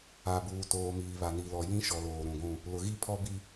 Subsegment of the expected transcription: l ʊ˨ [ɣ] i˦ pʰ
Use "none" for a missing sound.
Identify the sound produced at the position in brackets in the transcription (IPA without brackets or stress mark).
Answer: ɣ